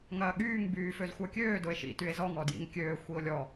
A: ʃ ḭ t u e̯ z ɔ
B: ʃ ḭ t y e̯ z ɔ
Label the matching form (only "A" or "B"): B